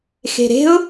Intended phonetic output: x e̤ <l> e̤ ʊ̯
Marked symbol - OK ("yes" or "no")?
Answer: no